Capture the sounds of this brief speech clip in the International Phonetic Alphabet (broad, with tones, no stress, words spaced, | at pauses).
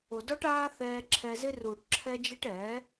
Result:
o˨dɔ˦ʈaː˦ θɛː˧ǁʰɛ˧zɪ˦ ruː˨ʈǁʰɛ˧d͡ʒɛ˧ʈ ɛ˨˦